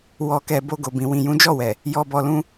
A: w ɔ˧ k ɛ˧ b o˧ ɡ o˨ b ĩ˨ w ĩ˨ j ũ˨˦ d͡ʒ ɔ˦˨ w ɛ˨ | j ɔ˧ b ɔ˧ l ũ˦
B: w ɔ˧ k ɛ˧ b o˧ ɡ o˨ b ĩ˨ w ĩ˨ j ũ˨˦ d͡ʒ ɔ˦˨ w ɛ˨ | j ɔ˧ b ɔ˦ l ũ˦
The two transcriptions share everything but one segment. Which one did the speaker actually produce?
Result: A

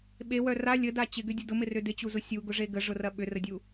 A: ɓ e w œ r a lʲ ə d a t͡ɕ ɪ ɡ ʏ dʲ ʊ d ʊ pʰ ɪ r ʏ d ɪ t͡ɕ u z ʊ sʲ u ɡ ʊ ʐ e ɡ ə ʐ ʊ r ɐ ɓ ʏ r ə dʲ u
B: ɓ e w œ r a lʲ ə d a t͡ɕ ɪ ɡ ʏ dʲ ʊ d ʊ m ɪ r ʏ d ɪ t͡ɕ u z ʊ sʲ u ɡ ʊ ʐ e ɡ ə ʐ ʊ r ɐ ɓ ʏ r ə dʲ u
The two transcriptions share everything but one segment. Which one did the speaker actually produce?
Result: B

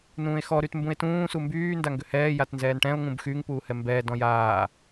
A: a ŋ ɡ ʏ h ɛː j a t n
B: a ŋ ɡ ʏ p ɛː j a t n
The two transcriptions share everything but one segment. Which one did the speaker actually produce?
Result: A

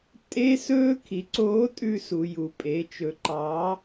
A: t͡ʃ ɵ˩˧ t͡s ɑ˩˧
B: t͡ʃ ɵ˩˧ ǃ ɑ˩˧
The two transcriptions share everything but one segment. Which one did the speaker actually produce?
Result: B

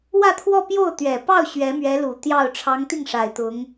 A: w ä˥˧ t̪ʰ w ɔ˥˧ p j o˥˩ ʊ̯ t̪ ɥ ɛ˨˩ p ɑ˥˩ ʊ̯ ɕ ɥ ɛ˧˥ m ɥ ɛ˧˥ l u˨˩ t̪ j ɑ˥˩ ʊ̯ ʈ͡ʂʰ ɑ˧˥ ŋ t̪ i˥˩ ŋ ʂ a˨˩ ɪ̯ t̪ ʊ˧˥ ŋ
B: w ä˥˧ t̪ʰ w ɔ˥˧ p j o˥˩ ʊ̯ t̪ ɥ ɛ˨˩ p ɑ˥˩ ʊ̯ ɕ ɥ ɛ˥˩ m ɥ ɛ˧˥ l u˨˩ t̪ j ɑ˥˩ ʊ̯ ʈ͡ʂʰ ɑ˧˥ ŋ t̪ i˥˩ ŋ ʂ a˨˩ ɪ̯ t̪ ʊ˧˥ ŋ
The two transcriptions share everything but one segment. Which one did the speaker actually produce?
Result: A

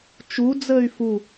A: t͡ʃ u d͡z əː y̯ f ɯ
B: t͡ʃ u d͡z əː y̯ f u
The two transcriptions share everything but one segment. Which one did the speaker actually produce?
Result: B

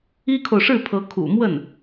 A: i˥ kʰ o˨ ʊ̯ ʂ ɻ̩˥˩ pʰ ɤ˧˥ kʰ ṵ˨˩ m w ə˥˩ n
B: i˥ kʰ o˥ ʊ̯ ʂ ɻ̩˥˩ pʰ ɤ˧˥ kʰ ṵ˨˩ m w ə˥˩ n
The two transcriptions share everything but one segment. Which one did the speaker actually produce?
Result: A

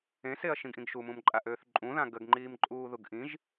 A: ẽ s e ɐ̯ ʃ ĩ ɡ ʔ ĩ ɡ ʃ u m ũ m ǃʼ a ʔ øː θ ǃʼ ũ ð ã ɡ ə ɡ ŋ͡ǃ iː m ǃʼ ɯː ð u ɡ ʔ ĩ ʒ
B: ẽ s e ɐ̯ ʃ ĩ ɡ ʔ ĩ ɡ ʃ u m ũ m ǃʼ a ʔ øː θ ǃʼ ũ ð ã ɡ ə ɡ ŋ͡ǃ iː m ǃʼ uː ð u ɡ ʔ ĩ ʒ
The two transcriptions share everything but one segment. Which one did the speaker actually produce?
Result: B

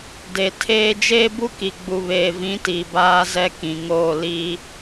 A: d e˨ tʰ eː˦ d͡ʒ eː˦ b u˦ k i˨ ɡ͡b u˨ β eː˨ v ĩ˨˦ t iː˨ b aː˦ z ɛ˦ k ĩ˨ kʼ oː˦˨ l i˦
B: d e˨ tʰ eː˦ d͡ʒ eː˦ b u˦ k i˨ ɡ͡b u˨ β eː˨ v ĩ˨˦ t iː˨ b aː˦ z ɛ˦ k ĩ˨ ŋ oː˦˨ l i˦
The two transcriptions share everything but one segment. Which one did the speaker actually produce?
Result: B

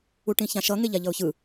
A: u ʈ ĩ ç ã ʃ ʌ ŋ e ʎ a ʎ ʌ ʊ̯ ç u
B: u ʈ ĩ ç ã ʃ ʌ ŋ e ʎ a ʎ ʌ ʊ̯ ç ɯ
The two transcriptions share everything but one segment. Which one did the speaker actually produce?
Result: B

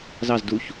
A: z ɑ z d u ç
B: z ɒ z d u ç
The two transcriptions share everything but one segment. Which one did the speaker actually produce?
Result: A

